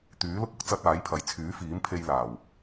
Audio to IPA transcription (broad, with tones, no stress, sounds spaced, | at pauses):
t̪ yː˨˥ l ʊ˥ k̚ ʊ˨˥ k̚ t͡s ɐ˥ t̚ aː˨˥ j pʰ ɐ˨˥ j t͡sʰ yː˨˥ f iː˨˥ m pʰ e˥ j l aː˨˩ w